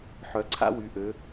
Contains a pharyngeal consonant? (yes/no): yes